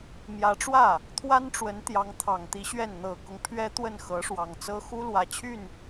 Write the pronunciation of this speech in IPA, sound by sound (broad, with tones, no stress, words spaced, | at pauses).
mjä˧˥ʈ͡ʂwä˥˩ | t̪ʰwa˥nʈ͡ʂwə˧˥n t̪jɑ˧˥ŋt̪ʰɑ˨˩ŋt̪i˧˥ɕɥɛ˥˩n n̪ɤ˨˩kʊ˦ŋpʰɥɛ˥ t̪wə˥˩nxɤ˧˥ ʂwɑ˨˩ŋt͡sɤ˥ xu˥ lwä˨˩t͡ɕʰy˥˩n